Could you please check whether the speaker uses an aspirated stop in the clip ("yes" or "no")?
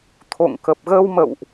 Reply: yes